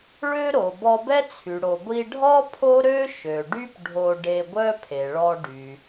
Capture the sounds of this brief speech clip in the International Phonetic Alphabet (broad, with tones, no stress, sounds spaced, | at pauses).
ɭ ø˥ ɾ o˩ b ɔ˧ b ɛ˥ t͡sʰ y˩ ɽ o˩ ɡʷ i˧ ɖʱ ɔ˥ pʰ o˥ ɾ ø˥ ʃ ø˩ ɖ y˥ p ɖʱ o˧ ɖ e˧ ɡʷ œ˥ pʰ e˩ ɭ ɔ˧ ɖ y˩